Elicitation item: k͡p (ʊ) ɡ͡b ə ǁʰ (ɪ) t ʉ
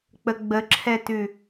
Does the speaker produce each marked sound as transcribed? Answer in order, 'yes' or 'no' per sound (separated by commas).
no, no